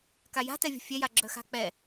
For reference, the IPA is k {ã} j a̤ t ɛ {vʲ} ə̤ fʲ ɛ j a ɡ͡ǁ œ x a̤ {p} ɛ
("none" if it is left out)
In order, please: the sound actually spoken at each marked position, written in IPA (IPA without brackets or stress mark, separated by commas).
a, vʲ, k͡p